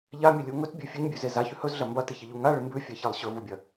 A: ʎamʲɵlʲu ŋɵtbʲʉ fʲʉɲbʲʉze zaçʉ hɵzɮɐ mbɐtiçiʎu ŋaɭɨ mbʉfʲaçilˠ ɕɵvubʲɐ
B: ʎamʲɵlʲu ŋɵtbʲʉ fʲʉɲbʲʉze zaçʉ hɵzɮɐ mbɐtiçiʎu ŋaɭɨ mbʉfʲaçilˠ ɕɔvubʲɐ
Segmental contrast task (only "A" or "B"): A